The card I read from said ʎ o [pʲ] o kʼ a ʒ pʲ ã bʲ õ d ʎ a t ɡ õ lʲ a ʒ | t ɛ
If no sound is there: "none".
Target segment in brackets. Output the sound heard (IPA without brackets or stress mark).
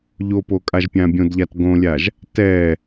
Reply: p